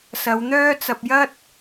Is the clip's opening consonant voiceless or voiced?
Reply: voiceless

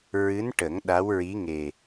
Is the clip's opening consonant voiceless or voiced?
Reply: voiced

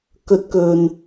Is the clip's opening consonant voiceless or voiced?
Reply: voiceless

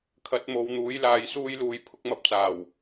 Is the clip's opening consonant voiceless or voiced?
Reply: voiceless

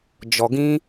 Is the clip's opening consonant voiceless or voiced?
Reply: voiced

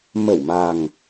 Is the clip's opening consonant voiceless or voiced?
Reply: voiced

